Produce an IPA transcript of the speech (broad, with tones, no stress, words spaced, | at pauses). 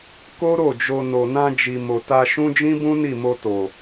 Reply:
ko˦ɾo˦˨d͡ʒo˧ no˨nã˧d͡ʒi˨mo˨ ta˧ʃũ˦ d͡ʒĩ˦bũ˦ ni˦˨mo˧ to˨